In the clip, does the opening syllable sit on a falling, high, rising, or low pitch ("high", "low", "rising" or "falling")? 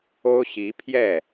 high